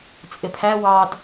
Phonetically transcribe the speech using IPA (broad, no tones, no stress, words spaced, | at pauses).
t͡sʼɪpʰæ wɑd